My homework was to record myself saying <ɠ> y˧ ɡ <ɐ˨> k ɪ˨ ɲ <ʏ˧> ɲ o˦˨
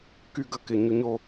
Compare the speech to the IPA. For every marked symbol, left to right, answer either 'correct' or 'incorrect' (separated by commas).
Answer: incorrect, correct, correct